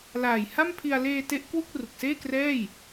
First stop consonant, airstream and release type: aspirated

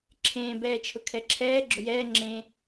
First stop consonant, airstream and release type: click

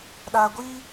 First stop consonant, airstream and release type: implosive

